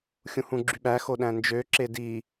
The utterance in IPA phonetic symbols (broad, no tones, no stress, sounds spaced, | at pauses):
xʲ ũ h ũ ɡ͡ǁ y ɓ æ x o ɗ æ̃ n d͡ʒ ø ǁ e d i